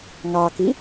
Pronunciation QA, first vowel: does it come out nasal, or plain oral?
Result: oral